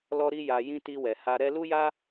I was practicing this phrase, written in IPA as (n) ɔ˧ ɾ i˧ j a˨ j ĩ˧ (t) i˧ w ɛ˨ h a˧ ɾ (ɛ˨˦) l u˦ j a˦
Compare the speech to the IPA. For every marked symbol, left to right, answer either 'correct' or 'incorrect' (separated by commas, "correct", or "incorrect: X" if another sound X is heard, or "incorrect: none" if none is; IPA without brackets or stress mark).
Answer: incorrect: l, correct, incorrect: ɛ˧